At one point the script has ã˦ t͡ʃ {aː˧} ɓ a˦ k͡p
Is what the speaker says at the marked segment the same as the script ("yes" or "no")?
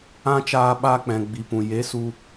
yes